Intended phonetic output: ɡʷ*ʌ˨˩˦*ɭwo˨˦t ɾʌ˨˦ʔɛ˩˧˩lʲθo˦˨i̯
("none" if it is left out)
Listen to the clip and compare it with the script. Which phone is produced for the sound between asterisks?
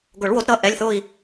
ʌ˨˩˦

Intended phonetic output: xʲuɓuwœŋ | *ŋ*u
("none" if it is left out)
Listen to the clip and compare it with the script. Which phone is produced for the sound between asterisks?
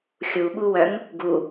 ɡ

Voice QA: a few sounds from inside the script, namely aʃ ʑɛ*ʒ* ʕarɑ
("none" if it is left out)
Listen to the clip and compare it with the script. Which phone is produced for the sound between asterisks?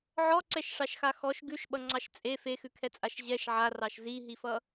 ʃ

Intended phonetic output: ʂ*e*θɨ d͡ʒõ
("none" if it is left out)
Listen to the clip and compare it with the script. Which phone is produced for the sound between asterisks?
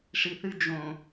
i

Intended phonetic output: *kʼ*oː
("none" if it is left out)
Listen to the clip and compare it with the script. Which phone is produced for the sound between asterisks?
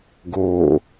ɡ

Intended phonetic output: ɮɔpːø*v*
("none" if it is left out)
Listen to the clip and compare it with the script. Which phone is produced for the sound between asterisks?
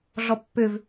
v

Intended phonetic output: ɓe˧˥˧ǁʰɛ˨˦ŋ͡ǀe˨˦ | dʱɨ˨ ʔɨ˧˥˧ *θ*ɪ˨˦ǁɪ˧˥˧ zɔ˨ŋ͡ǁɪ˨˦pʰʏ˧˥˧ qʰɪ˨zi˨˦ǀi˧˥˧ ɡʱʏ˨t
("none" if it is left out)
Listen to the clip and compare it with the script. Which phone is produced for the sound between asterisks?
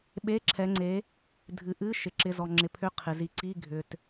ʃ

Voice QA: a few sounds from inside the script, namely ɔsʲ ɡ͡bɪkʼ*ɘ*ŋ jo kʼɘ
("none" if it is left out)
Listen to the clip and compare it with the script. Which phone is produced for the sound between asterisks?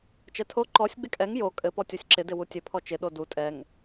ɛ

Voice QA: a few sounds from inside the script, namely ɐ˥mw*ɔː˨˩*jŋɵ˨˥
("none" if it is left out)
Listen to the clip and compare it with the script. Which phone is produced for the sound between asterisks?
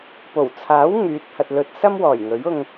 ɔː˨˩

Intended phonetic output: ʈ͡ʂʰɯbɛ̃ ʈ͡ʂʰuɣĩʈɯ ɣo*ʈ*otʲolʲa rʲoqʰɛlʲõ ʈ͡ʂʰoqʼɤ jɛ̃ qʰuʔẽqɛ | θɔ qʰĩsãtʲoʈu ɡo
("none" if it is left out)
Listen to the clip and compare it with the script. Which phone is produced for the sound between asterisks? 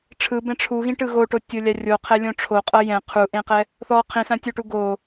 ʈ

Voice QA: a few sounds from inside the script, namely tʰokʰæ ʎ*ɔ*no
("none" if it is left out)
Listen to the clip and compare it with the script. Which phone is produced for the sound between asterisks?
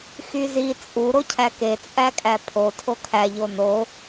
o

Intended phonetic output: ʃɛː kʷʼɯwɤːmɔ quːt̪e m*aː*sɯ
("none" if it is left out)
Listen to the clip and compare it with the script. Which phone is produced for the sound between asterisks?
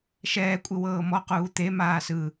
aː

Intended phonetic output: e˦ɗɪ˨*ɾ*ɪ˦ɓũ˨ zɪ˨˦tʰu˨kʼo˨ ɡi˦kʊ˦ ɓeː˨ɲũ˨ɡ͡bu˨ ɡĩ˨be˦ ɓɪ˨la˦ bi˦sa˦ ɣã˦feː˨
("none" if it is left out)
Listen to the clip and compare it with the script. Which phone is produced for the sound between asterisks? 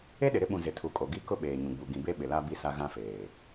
ɾ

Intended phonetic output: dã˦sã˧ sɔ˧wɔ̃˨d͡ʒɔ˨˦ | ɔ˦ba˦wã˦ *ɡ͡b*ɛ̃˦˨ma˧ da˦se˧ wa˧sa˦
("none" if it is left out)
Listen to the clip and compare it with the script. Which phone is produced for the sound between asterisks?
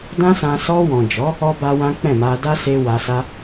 k͡p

